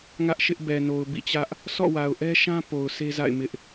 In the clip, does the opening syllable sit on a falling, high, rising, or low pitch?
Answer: high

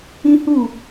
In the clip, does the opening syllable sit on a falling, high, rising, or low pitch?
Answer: high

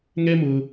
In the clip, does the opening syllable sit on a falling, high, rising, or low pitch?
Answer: high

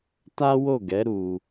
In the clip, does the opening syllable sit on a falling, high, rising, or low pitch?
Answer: high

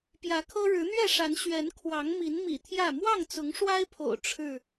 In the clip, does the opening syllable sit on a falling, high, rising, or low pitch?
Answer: rising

